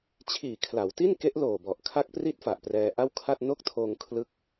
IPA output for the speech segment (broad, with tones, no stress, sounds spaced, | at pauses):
t͡ɕʰ iː˨˩ kʰ l a˩˦ w t i˥˩ n k e˦˥ ʔ l oː˨˩ b ɔ˨˩ ʔ kʰ a˦˥ k̚ p r i˦˥ t̚ f a˨˩ ʔ p r ɛː˧ ʔ a˥˩ w kʰ a˥˩ t̚ n o˥˩ k̚ tʰ oː˧ ŋ kʰ l ɯ˦˥ k̚